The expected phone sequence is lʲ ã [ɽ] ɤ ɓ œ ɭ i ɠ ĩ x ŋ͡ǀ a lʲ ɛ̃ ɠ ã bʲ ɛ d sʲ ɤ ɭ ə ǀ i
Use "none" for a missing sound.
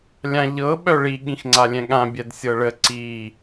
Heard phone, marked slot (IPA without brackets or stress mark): ʎ